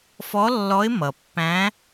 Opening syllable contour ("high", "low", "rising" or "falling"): rising